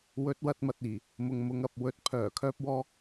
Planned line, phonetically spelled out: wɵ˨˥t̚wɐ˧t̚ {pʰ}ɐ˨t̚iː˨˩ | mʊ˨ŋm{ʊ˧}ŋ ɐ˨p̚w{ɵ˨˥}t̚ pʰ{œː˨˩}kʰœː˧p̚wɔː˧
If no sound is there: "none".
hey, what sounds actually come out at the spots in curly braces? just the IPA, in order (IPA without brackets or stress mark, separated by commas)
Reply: m, ʊ˨˧, ɵ˨˥, œː˨˩